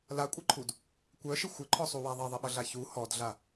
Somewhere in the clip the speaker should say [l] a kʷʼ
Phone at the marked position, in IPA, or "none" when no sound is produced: l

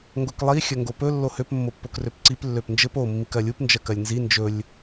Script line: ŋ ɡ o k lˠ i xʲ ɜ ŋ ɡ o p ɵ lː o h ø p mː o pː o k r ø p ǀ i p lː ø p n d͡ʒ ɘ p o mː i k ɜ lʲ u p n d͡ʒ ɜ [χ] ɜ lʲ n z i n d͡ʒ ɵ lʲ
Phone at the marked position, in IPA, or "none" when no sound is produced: k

